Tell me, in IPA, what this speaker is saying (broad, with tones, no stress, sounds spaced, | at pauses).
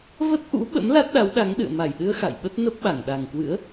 v ə˦˥ t̚ ʔ ṵ˧˥ ɓ ə̰˧˥ m l a˦˥ t̚ ɗ a˨˦ w ɗ a˨˦ ŋ ɗ ɨ̰˧˨ ə̯ m a˧˩ j ɗ ɨ˧ ə̯ x a̰˧˨ j ɓ ə˦˥ t̚ n ə˦˥ p̚ ɓ a˧˩ ŋ ɗ a˨˩ ŋ k w ɨ̰˧˥ ə̯